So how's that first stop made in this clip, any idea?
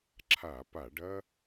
click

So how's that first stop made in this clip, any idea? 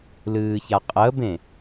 ejective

